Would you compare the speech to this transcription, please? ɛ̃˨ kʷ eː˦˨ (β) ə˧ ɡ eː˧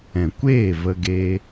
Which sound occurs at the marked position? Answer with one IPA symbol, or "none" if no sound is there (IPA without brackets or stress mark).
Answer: v